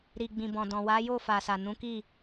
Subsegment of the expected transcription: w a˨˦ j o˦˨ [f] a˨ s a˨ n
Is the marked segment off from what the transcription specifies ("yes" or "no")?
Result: no